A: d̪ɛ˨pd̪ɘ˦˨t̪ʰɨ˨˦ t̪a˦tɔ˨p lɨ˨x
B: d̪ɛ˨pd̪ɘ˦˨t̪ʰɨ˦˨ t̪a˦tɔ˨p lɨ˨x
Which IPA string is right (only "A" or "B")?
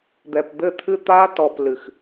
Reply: B